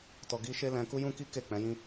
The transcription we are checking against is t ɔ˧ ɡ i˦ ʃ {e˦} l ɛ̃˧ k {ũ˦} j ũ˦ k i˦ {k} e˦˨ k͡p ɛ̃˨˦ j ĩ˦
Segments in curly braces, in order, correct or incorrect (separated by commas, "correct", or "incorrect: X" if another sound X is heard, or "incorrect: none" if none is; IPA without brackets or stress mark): correct, incorrect: u˦, correct